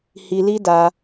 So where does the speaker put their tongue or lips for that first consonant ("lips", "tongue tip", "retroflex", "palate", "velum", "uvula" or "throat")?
throat